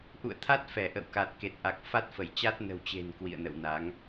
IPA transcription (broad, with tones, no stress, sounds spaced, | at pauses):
ʔ ṵ˧˨ ə̯ t̪ʰ a˦˥ t̚ f ɛ˧˩ ʔ ə̰˧˨ w k a˨˩ t̚ k e˨˩ t̚ ʔ a˨˩ k̚ f a˦˥ t̚ f ə˧˩ j t͡ɕ a˦˥ t̚ n ə̤˨˩ w t͡ɕ e̤˨˩ n k w ḭ˧˨ ə̯ n ə̰˧˨ w n a˨˦ ŋ